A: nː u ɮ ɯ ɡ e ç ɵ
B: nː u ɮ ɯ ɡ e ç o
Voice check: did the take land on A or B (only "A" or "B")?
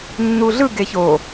B